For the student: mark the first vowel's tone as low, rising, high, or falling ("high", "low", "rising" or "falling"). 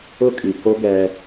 high